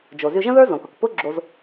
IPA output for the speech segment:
d͡ʒ o˩ z y˧ ʒ ə̃˥ ð ə˞˥ z õ˩ k ʊ˩ k p ʊ˥ ɡ͡ǁ o˧ z

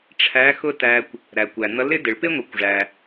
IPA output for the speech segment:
ʈ͡ʂʰ æ˧˥ x ʊ˥ t æ˧ kʷ | ɾ æ˩ kʷ æ˩ n̪ ʌ˧˥ l ɪ˧˥ d ɪ˩ ɭ p ɪ˥ ŋʷ i˩˧ kʷ ʐ æ˩

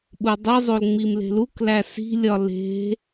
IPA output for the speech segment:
ɓ u dˤ i zˤ o l ŋ͡m i m l e̤ l u k l æ s i̤ lʲ ɒ l e̤

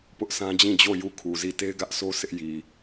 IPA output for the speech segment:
p ʊ˦ ʔ s ã˦ d͡ʑ ĩ˦˨ d͡ʑ o˦˨ j u˦˨ kʰ u˨ z i˦˨ t e˦ ɪ̯ ɡ ä˦ ʔ s o˦ sʰ ɪ˦ ʔ j i˨

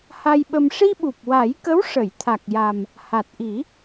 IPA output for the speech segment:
h a˧ j ɓ ə˧ m ʂ i˧ ɓ u˨˩ p̚ w a˨˩˦ j k ə˧˥ w ʂ ə˨˩˨ j t̪ʰ a˨˩ k̚ j a˨˩ m | h a˨˩ t̚ ʔ i˨˩˦

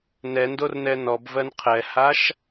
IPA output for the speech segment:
n ɛ n d o r n ɛ n ɔ b v ɜ n qʰ ɛ h a ʃ

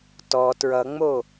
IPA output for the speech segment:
t ɔ t ɹ ʌ ŋ͡m o

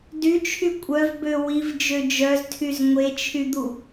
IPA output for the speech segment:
d y t͡ʃʰ y kʷʼ œ v b ø w i v d͡ʒ ø d͡ʒ œ z tʰ y z ŋʷ e t͡ʃʰ y d̪ u

